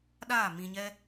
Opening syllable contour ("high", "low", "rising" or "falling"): falling